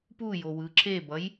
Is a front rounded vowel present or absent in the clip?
absent